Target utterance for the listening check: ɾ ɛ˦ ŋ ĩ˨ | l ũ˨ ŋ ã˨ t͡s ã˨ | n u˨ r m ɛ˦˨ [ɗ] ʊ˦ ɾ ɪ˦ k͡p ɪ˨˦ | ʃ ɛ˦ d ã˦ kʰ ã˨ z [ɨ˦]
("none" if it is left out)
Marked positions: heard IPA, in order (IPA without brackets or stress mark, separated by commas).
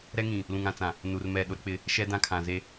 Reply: ɗ, e˦